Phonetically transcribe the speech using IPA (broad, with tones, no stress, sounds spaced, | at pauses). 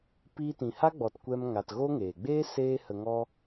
p iː˧ t ĩ˨ h a˦ ɡ͡b ɔ˨ t kʷ ɛ˧ m ŋ a˨ t ɣ o˦ ŋ eː˨ ɡ͡b eː˦ s eː˧ h ə˨ ŋ ɔ˧